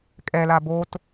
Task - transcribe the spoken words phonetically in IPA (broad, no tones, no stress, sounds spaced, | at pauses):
kʼ ɛ l a b o t